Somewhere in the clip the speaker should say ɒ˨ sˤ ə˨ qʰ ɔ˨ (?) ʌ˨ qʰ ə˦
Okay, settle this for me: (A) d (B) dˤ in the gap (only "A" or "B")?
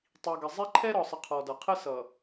A